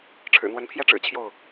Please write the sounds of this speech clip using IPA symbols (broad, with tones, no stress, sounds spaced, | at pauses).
ʈ͡ʂʰ ɻ̩˨˩ n̪ w ə˨˦ n pʰ j ɛ˦ ʈ͡ʂ ɻ̩˨˩ t͡ɕʰ j o˥˨ ʊ̯